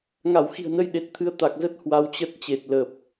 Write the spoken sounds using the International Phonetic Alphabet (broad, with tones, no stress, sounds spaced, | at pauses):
ŋ a˧˩ w x i̤˨˩ ə̯ n ə˧ j ɗ e˨˩ t̚ t̪ʰ ɨ˨˦ ə̯ t̪ a˨˩ k̚ z ə˦˥ t̚ h w a˧ w t͡ɕ ə˦˥ t̚ t͡ɕ e˨˩ t̚ l ə˨˩ p̚